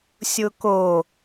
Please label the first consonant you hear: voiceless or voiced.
voiceless